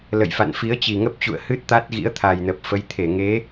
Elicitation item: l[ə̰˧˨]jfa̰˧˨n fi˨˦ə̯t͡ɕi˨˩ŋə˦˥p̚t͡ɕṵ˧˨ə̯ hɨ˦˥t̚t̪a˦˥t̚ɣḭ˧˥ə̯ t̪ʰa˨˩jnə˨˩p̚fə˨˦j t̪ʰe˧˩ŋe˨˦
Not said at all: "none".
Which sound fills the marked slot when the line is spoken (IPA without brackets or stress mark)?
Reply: ə̰˧˨